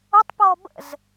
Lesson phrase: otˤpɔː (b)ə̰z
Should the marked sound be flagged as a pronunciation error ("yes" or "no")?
no